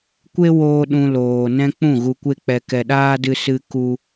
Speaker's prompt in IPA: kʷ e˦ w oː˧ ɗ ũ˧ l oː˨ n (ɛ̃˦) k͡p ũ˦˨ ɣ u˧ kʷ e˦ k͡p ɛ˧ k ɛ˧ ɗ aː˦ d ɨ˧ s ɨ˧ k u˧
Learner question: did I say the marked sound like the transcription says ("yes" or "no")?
yes